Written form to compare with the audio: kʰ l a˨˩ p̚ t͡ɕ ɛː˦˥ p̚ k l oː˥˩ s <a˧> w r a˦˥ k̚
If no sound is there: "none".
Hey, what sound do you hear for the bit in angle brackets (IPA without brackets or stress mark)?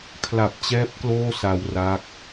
a˧